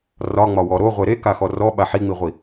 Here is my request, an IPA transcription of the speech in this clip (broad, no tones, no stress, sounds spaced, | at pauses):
r ɒ ŋ͡m ɒ w ɔ ɾ o ʁʷ e ɾ e k a x ɔ r ɔ ɓ a ħ i ŋ͡m i ʁʷ i